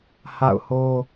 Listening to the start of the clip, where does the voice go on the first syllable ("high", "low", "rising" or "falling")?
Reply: falling